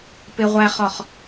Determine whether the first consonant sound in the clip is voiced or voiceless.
voiceless